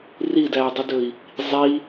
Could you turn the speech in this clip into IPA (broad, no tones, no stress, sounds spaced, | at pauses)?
r i d æ u̯ dˤ y d ɵ i̯ | zˤ i